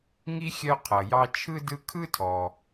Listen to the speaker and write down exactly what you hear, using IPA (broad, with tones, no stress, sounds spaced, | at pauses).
ŋ i˥ xʲ œ˦ qʰ ʌ˩ j ɑ˦ t͡ʃʰ ɯ˥ d ɯ˦ kʰ ɯ˥ tʰ ɔ˩